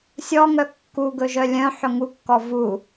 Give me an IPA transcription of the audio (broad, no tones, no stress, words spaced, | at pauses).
sʲɔŋœ kːu ɡɵʒœlʲœ̃ħɵ ŋukːɔ vu